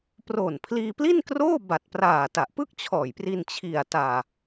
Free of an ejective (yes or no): yes